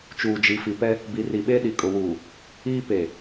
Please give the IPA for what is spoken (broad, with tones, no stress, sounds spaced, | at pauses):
t͡ʃ uː˨ d͡ʒ i˨ f i˨ p ɛ˦ | b i˨ r i˨ ɓ e˦ ɗ i˨ kʼ ʊ˨ w uː˨ | iː˦ p e˨